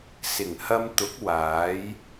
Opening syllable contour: low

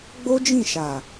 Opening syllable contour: high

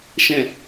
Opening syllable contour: low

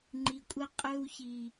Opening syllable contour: low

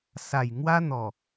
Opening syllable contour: low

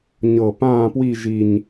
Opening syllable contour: low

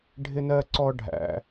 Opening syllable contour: high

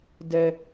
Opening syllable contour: high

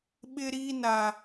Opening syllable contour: high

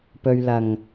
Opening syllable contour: low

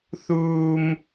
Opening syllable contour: high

